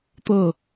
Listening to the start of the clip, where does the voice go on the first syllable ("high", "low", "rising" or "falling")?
falling